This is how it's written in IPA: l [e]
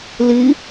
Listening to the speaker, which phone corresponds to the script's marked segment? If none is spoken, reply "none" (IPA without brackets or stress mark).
i